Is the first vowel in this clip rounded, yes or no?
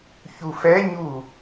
yes